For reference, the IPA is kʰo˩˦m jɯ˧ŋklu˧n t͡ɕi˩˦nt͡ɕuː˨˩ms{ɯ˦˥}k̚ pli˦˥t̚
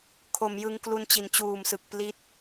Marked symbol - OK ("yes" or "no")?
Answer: no